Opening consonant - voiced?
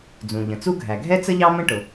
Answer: yes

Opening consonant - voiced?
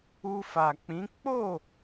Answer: no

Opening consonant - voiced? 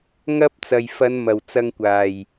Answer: yes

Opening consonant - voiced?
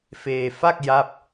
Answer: no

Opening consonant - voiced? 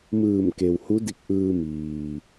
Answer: yes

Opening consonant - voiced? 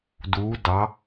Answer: yes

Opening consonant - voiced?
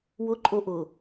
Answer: yes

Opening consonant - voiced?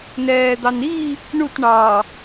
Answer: yes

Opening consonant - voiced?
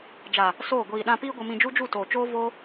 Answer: yes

